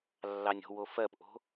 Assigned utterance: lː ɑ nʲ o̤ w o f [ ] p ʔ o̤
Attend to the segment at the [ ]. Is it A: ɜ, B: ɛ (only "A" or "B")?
A